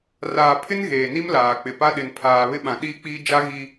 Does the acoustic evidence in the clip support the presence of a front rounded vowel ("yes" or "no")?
no